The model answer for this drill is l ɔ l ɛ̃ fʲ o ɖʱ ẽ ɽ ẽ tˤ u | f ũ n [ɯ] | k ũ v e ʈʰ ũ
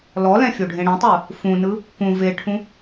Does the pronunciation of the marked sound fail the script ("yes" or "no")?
no